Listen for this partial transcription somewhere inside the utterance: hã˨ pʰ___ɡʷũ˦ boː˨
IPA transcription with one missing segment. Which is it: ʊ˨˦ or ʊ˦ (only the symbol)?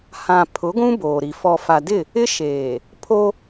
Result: ʊ˨˦